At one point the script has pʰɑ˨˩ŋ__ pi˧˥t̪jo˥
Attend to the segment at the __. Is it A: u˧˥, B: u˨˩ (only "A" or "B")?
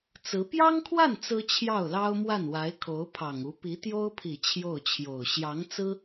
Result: A